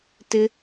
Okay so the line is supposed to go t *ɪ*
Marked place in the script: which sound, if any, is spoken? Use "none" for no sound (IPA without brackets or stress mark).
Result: ɪ